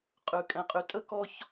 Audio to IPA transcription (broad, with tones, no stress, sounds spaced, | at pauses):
qʼ ʉ˨ kʼ ɛ̃˨ qʼ y˨ tʼ ə˦ k ɔ˦ ç